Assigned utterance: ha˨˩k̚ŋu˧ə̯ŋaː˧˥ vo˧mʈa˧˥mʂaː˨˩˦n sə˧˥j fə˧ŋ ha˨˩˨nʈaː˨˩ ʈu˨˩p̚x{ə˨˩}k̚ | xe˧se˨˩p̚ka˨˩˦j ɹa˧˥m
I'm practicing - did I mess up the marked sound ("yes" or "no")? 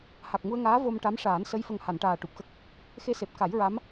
yes